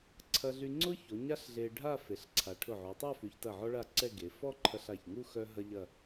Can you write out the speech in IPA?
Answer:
ǀʰɐ˧ɮy˧ŋ͡ǀʊ˥ço˩˧ ɲa˥ɬɮe˧ ɖʱa˥˧fe˩˧ɬ ǀʰa˩˧ʈʰʊ˧˩ʕo˩˧tˤa˥˧ fy˩˧çtɐ˧˩ ʕɔ˥ɭa˥˧ǀɛ˥˧ɡe˩˧ fɔ˥˧ǃʰɐ˧ɬa˧˩çŋu˥˧ xœ˥ɦɐ˥ʎɐ˥˧

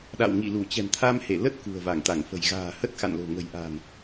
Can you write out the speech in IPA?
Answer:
ɗa̰˧˨wŋḭ˧˨lu˧˩ t͡ɕɛ̤˨˩mt̪ʰa˧mhe˧˩ lə˦˥t̚ kṳ˨˩ə̯va˧˩ŋ t̪a˧˩ŋfə̤˨˩j ɣa̤ː˨˩hə˦˥t̚xa̰˧˨nlo̤˨˩ ŋə̤˨˩jʔa̤ː˨˩n

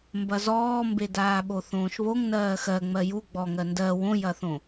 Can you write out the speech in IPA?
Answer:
mbɐzɔːmbe daːɓoθõːʃβoŋ nɜːxɜ ŋ͡mɜju ɡ͡bɔŋɜ ndɜ wõjɐθõ

